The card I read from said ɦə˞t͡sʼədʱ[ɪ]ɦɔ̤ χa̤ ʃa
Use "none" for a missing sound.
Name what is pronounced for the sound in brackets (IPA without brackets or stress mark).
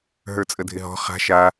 ɪ